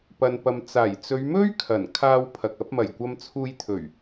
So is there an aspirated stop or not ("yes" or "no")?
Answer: yes